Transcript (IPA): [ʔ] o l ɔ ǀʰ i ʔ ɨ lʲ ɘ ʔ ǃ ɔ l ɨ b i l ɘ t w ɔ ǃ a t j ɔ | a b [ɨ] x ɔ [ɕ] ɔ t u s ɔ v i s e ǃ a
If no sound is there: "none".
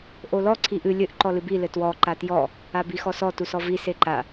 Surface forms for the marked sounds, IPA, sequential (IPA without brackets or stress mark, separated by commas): ʔ, i, s